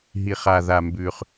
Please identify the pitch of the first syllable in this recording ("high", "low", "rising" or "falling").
low